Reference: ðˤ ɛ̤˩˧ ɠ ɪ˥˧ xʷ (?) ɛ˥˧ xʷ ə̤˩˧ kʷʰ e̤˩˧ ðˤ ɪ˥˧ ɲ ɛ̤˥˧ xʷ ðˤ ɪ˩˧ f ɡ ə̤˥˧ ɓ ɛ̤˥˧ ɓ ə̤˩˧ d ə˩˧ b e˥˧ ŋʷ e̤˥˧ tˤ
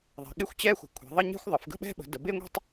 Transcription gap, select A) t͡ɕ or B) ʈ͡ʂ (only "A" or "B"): A